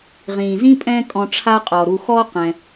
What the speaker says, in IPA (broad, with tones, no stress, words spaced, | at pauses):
ʁĩː˩zĩ˥pʼɛ̃˦ kʼɔ̃˨ ʈ͡ʂʰa˦qʼɔ˩ ɾu˨xɔ˦ qɛ̃˨